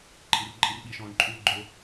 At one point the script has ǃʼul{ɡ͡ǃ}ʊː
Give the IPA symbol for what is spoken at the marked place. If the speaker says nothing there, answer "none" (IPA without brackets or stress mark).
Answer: ɡ͡ǃ